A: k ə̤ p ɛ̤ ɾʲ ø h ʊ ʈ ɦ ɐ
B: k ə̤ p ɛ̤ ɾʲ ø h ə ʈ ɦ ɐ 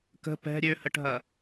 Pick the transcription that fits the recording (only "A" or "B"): B